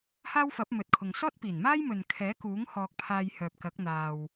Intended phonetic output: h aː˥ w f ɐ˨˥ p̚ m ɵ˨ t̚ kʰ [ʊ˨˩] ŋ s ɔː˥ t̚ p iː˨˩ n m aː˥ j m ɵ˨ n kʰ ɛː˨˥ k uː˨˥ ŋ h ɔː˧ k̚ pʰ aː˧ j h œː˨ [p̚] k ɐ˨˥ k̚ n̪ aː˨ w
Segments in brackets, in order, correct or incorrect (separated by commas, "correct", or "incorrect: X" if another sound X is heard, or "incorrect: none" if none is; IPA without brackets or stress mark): incorrect: ʊ˨, correct